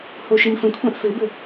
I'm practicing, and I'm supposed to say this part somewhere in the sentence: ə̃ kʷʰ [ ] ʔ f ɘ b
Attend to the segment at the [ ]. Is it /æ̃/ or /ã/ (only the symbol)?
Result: ã